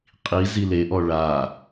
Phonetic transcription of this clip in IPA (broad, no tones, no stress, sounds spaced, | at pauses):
qʼ i z i l e ʔ ɔ ɭ a